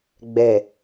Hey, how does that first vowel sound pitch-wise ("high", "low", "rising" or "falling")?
low